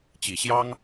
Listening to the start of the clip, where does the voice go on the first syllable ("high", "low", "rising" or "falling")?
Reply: low